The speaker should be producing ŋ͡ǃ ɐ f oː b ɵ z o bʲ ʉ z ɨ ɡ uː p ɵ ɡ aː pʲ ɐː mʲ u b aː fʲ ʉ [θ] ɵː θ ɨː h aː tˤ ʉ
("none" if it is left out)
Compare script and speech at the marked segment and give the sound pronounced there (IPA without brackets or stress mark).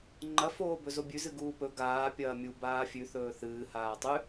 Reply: θ